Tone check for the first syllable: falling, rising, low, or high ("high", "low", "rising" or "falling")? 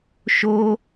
high